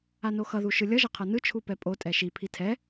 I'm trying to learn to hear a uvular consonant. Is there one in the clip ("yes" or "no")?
yes